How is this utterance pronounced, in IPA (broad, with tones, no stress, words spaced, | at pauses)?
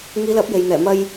ŋiː˨˧lɐ˨˥p̚ je˨jn̪ɛː˨˩ mɐ˧j